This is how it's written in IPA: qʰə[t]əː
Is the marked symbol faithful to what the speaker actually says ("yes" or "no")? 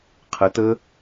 yes